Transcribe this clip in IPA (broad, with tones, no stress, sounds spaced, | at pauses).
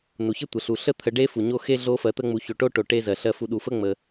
n u˩ ç ə˥ tʷ ə˩ ɬ u˩ ɬ ə˥ t̪ʰ ə˨ ɖ e˥ f u˩ ɲ o˦ x e˦ ɮ o˦ f ɜ˨ t̪ ə˦ ŋ͡m u˨ ç o˨ ʈ o˥ ʈ o˩ ʈ e˦ z ɜ˩ ɬ ɜ˦ f u˨ ɗ u˩ f ə˥ ŋ͡m ə˩